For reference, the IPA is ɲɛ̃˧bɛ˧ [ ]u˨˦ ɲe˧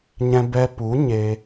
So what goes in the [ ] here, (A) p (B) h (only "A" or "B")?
A